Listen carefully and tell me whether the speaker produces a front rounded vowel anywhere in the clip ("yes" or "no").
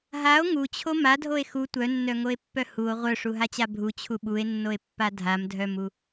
yes